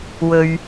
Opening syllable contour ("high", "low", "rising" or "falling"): low